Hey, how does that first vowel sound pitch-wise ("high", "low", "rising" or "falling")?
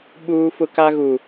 high